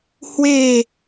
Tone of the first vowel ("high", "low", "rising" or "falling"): falling